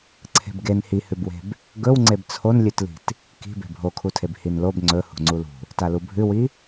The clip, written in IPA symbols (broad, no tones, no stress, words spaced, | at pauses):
ǀʰe̤bɡen hihʉbwe̤b | ɡɵw ŋ͡ǀebt͡sʰonlʲʉtli̤t | ki̤ be̤bʱokʰutʰeb hinlob ŋ͡ǀɵ hṳŋ͡ǀulṳ | talubʱʉwi